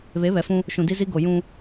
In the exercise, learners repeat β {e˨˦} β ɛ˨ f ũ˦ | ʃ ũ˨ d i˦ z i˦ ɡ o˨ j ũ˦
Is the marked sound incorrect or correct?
correct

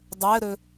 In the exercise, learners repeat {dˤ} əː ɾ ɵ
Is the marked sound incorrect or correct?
correct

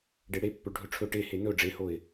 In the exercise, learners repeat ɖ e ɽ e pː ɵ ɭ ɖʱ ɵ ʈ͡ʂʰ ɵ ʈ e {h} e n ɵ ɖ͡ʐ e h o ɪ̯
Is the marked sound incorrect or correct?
correct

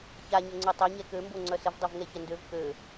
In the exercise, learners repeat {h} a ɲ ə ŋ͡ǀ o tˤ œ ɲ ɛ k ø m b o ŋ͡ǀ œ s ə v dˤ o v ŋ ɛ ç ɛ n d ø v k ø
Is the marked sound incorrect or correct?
incorrect: ç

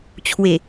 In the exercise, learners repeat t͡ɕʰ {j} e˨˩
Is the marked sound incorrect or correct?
incorrect: w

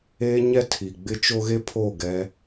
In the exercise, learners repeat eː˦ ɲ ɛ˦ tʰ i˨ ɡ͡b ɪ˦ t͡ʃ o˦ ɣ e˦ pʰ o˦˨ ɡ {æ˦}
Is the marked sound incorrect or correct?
incorrect: ɛ˦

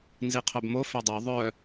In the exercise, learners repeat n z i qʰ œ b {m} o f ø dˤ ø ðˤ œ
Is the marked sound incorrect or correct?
correct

